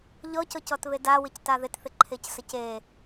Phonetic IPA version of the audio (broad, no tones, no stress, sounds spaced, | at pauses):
ʎ ɔ c ɔ c ɔ t β e d a w ɪ c t a ð ɪ t θ ɪ ǃʰ e c s ə c e